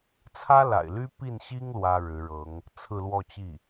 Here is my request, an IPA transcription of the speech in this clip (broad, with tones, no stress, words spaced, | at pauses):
t͡sʰä˥la̰˨˩ɪ̯ly˥ pi˥˩nɕi˥ŋ lwä˥ɻɻ̩˧˥ɻɤ˧˥ŋ | t͡sʰɹ̩˥˧lwɔ˥˧t͡ɕi˥˩